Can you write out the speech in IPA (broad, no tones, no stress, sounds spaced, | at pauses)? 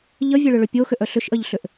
ʎ ə vʲ ɛ ɭ ʏ ɭ ʏ pʲ o x ʏ ʔ œ ɬ ʏ ʃ ʔ ə ʎ ɬ ʏ ʔ